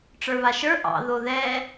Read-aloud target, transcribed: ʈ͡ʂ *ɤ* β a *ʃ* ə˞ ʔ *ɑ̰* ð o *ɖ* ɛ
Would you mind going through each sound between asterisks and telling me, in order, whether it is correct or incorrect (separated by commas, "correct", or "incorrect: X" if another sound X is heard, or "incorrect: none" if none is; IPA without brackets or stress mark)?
incorrect: ə˞, correct, correct, incorrect: ð